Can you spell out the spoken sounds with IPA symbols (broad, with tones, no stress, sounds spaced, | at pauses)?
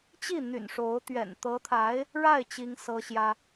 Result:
t͡ɕ i˥˩ n̪ y̰˨˩ n ʂ o˧˥ ʊ̯ t̪ ɥ ɛ̰˨˩ n t̪ ɤ˧˥ t̪ʰ a˧˥ ɪ̯ | ɻ a˥˩ ɪ̯ t͡ɕ i˥ ŋ s ɤ˥ ɕ j ä˥